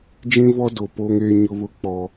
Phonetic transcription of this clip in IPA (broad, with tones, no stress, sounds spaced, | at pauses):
d͡ʒ ĩ˦ v ɔ˦ d o˨ p o˦ ŋ eː˦ ɲ ʊ˦ β ʊ˦ k͡p ɔ˦